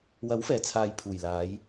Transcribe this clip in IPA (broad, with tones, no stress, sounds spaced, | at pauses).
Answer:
w ɐ˨˥ w f ɛː˨˩ t͡sʰ aː˨ j pʰ uː˨˩ j l aː˨˧ j